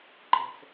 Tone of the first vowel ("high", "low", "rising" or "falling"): low